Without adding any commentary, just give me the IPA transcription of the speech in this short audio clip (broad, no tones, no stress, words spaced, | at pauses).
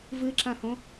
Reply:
vɨǁãhõ